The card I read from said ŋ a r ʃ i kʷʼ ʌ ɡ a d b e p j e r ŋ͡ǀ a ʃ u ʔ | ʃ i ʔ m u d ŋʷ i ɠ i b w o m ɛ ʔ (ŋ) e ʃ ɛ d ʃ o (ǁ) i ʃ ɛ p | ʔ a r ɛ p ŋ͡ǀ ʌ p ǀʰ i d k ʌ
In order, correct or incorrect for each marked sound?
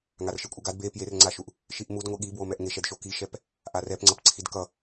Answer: correct, incorrect

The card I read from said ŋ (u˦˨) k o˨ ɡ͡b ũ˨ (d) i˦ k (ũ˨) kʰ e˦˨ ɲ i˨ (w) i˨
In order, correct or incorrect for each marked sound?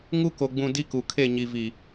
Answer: incorrect, correct, incorrect, incorrect

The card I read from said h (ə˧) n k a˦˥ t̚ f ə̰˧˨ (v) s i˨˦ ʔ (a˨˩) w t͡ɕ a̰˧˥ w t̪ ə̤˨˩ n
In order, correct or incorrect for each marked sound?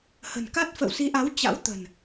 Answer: incorrect, incorrect, incorrect

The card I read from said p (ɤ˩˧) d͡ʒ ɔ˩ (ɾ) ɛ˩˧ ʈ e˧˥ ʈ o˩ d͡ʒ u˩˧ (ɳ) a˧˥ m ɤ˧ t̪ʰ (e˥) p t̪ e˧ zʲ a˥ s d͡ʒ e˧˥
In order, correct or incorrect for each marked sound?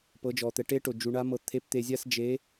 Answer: correct, incorrect, correct, incorrect

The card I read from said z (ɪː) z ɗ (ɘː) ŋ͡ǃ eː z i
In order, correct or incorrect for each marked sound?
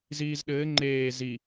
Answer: incorrect, correct

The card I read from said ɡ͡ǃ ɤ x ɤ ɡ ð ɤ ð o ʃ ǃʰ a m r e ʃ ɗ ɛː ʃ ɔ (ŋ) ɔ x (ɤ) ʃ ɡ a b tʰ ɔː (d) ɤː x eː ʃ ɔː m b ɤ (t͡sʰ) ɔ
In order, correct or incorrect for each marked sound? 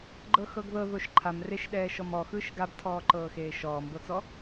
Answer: incorrect, incorrect, incorrect, incorrect

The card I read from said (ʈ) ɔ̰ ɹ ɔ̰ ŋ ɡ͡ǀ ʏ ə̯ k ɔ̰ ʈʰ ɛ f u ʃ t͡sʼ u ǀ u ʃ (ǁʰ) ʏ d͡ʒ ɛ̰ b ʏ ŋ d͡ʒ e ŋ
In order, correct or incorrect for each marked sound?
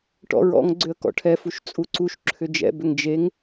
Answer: correct, correct

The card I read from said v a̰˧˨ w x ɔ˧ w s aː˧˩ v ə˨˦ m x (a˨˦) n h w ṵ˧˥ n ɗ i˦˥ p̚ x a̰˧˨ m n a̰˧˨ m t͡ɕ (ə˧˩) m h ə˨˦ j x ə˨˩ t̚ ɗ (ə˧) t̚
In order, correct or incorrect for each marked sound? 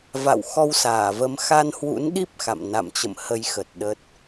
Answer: incorrect, incorrect, incorrect

